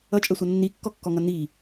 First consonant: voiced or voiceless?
voiceless